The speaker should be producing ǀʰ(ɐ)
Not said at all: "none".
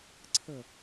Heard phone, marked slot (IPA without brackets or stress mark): ə